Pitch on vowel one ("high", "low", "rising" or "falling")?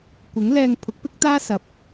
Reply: rising